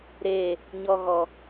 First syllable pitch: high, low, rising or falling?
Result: falling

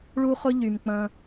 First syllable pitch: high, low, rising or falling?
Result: high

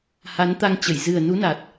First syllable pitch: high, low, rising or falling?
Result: rising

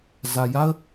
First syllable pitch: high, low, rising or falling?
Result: low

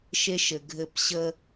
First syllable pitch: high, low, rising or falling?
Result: high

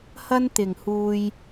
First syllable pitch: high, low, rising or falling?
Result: high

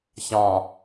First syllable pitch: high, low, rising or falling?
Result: low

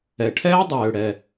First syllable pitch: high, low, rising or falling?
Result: low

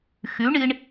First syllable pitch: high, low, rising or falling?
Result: rising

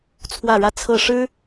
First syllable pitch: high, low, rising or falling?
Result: falling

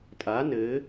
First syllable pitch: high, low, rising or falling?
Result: rising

